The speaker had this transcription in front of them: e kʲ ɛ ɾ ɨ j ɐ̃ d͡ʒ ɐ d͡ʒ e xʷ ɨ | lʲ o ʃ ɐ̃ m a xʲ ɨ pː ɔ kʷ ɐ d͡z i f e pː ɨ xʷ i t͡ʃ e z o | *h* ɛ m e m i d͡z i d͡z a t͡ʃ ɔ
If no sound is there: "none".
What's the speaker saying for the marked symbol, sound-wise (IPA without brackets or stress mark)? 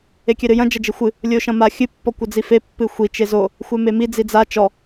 xʷ